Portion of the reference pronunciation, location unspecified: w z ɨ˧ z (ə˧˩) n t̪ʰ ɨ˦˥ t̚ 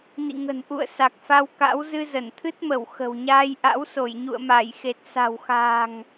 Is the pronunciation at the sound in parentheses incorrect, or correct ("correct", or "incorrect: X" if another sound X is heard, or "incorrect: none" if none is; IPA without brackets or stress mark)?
correct